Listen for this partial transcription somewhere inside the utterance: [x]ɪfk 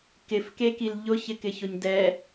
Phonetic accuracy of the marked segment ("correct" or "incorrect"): incorrect